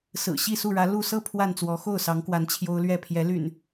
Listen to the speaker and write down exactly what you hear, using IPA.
s ɹ̩˨˩ ɕ i˥˨ s u˥˨ ɻ ä˨˦ l u˥˨ s ɤ˥˨ pʰ w a˥˨ n t͡s w ɔ˨˦ x o˥˨ ʊ̯ s ɑ˨˦ ŋ k w a˨˦ n t͡ɕʰ j o˦ ʊ̯ l ɥ ɛ˥˨ pʰ j ɛ˨˦ l y̰˨˩ n

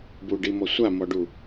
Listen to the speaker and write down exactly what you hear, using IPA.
b u ɖ i m ɔ sʷ a m ɔ ɖ u

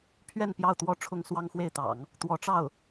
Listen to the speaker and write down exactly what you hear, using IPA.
pʰ ɥ ɛ˥˧ n p j ɑ˥˩ ʊ̯ t̪ w ɔ˥ ʈ͡ʂʰ ʊ˥ ŋ s w ɑ˥ ŋ x w e˥˩ ɪ̯ t̪ ɑ̰˨˩˦ ŋ | t̪ w ɔ˧˥ ʈ͡ʂ ɑ˥˩ ʊ̯

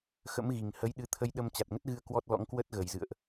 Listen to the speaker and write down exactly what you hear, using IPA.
x ə̰˧˥ m ɣ i˨˩ ŋ h ə˨˦ j ɗ ɨ˨˦ t̪ʰ ə˧ j ɗ ə˧ m t͡ɕ a˨˩ t̚ ŋ ə˦˥ t̚ ɣ ɨ˧ ə̯ k w ɔ˦˥ t̚ l ɔ̰˧˥ ŋ k w ə˦˥ t̚ ɣ ə˨˩ j z ɨ̰˧˨ ə̯ ʔ

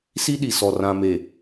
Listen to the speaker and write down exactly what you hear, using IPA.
s i˦ ɗ i˨ s ɔ˨ r ã˨ m e˨

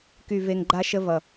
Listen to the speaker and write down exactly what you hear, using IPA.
k y˦˨ v e˧ ŋ ɡ͡ǃ a˦ ʃ ə˦ v ʌ˨

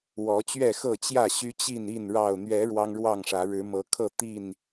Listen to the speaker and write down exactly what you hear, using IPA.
w ɔ˨˦ t͡ɕ ɥ ɛ˥˨ x ɤ˥˨ t͡ɕ j ä˥˨ ɕ y˦ t͡ɕ i˥˨ n i˥˨ n ɻ ɑ˨˩ ʊ̯ n̪ ɥ ɛ˨˦ ɻ w ɑ˦ ŋ ɻ w ɑ˥˨ ŋ ʂ ä˨˦ ɻ ɻ̩˨˦ m ɤ˨˦ kʰ ɤ˥˨ t̪ i˥˨ n

